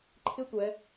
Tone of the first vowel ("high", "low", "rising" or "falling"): high